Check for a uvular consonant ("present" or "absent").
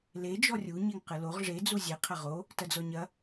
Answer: present